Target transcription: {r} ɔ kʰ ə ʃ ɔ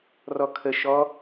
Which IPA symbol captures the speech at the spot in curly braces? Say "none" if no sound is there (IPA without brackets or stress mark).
r